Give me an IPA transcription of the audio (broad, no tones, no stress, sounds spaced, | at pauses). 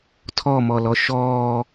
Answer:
tʰ ɔ m ɔ l ɔ ʃ ɔː